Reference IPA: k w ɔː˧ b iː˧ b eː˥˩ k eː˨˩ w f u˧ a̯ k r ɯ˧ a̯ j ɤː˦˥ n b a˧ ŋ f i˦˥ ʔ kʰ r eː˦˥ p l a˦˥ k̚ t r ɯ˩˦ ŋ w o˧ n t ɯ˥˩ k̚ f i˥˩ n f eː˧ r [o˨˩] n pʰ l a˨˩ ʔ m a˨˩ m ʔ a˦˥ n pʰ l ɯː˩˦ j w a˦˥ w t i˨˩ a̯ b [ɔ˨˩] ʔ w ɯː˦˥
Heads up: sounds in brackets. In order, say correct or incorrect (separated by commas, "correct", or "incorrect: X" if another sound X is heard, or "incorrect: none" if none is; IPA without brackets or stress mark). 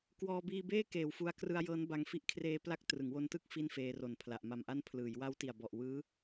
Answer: correct, correct